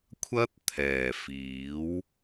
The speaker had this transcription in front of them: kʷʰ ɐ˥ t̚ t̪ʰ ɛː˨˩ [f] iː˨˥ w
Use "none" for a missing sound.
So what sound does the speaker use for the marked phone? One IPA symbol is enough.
f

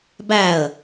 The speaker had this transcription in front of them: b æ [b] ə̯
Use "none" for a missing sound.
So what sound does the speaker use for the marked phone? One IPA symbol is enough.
none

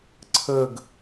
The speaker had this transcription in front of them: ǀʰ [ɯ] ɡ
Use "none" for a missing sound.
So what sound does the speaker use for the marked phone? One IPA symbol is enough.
ə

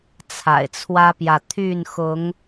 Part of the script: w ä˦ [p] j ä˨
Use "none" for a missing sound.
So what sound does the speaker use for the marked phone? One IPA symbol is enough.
p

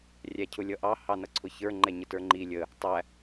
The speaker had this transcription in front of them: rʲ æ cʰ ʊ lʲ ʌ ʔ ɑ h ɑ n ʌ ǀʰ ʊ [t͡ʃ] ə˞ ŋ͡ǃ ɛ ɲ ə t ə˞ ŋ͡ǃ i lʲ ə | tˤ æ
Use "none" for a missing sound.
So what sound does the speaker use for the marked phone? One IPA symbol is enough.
ç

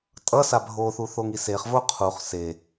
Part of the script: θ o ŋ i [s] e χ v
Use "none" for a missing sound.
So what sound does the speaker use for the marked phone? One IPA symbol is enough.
s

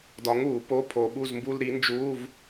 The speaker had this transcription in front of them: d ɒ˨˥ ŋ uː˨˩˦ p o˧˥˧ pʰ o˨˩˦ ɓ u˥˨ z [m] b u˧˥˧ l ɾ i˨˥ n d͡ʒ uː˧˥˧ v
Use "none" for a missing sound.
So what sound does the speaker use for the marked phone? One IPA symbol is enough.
m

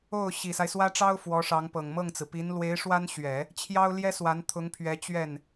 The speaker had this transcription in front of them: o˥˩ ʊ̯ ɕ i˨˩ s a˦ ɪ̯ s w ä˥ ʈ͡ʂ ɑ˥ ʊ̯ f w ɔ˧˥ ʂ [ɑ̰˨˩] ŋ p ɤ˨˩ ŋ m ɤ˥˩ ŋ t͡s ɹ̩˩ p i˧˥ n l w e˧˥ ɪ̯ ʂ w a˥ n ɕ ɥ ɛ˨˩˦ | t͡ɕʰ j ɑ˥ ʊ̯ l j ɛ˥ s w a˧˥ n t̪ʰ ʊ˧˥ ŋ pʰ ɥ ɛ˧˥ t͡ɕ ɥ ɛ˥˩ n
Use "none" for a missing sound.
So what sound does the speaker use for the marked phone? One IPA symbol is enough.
ɑ˧˥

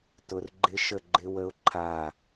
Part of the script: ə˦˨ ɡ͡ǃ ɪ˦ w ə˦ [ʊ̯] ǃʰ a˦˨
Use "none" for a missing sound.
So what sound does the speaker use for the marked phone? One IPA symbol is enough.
ʊ̯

